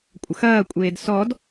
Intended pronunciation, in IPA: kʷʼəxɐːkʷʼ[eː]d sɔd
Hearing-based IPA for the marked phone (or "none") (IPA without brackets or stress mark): eː